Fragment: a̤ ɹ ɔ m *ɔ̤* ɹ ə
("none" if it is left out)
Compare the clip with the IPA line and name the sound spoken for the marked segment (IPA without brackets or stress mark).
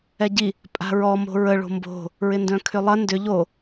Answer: o̤